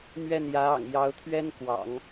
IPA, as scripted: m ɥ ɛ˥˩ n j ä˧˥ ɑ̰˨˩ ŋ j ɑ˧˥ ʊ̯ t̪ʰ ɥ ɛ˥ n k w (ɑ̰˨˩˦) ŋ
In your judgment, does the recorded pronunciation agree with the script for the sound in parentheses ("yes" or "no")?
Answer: yes